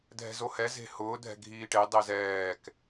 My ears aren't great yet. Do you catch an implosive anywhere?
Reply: no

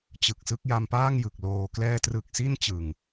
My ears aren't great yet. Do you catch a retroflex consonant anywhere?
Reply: no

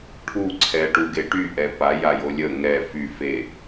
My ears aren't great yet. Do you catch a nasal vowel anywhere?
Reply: no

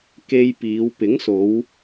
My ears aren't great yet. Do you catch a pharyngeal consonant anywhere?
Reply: no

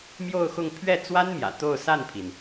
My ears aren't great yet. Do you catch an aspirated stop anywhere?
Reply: yes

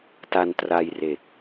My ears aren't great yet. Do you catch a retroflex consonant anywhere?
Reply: no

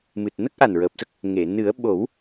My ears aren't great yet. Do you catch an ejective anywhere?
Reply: no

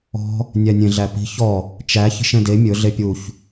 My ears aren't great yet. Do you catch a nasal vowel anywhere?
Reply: yes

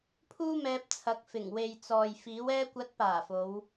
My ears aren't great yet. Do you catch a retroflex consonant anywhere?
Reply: no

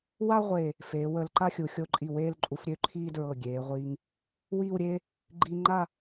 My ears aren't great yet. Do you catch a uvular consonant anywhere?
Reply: yes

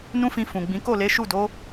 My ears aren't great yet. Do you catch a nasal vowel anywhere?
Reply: yes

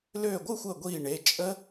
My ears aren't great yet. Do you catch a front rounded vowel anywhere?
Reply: yes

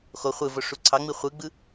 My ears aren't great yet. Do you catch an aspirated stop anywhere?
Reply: yes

